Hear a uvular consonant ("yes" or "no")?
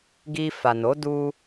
no